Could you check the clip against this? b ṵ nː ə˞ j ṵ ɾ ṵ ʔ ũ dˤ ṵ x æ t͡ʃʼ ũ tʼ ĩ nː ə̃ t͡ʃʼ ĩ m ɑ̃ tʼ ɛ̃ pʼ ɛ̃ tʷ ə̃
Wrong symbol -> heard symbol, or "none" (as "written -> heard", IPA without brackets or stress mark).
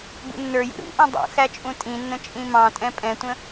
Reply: none